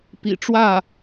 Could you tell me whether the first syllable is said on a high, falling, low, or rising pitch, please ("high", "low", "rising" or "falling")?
low